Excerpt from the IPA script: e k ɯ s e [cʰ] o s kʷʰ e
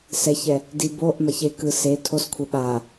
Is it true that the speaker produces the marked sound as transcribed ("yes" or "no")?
no